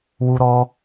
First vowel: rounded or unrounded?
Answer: rounded